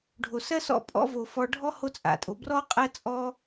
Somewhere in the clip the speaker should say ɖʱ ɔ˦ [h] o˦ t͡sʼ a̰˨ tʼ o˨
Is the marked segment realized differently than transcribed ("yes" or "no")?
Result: no